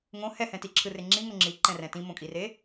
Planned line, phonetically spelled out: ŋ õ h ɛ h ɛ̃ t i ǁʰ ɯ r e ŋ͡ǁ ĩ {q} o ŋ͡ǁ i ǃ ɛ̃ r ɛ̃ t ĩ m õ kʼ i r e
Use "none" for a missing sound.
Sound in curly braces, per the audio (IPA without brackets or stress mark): ŋ